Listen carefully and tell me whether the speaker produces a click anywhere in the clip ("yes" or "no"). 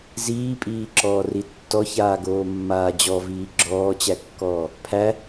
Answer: yes